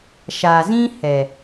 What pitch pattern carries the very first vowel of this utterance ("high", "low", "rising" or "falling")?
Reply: low